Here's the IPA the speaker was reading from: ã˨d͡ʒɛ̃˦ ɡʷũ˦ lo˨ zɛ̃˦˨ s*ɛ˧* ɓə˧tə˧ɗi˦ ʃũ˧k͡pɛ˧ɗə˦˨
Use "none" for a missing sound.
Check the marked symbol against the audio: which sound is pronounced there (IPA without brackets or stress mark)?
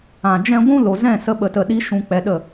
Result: ə˧